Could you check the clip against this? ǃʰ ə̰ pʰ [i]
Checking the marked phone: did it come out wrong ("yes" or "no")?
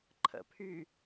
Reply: yes